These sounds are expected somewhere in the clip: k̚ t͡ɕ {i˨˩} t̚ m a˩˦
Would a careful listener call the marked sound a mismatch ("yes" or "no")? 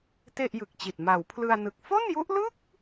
no